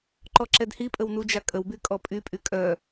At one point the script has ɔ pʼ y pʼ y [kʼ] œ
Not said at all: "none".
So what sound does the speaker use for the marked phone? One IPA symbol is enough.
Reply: kʼ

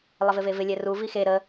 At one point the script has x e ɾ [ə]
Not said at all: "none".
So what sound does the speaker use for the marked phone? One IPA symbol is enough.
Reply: ə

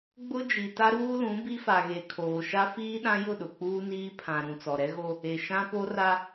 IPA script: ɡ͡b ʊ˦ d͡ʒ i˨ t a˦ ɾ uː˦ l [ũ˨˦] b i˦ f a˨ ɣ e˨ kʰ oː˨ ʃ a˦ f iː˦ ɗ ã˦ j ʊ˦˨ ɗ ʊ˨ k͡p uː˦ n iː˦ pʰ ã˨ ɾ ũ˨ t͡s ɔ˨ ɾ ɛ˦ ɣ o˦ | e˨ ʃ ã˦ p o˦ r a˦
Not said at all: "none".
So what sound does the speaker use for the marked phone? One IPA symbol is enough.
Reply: ũ˨˦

